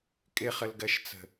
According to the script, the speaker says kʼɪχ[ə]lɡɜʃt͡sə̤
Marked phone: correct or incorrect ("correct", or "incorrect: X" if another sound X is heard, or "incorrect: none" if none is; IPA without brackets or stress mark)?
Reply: correct